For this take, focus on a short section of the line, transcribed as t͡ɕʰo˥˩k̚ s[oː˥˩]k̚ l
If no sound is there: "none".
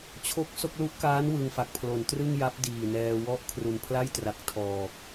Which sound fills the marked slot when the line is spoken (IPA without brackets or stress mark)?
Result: o˥˩